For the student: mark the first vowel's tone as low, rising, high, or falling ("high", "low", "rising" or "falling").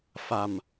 low